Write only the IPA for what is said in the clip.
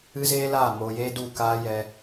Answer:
ɨ˦ z eː˦ l aː˦˨ m oː˧ j eː˦ d u˦˨ k aː˦ j ɛ˦

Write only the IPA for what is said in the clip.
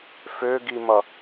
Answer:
f ø ɡ i m ʌ

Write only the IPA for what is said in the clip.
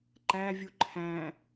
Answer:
ǃ æ vʲ u ǃʰ æ̃

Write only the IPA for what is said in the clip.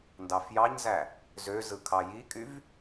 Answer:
n d ɑ f j ɑ ɲ z æ | z ø z ɯ kʰ ɑ j i kʼ y v

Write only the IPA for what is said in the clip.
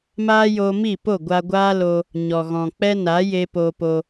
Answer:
m aː˦ j oː˧ m i˦˨ p o˦˨ ɡʷ a˧ ɡʷ aː˦ l o˧ | ɲ ɔ˨ ɣ ɔ̃˨ k͡p ɛ˦ n a˨˦ j e˧ p oː˧ p o˧

